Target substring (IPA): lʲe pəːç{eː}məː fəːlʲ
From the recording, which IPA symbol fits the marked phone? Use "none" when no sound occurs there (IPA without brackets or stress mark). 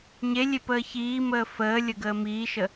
iː